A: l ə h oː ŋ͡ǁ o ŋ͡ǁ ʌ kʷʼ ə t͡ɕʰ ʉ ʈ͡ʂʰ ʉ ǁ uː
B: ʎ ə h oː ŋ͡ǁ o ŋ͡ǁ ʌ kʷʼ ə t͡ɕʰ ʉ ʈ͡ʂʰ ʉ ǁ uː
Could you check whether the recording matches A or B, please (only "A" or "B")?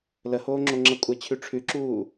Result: A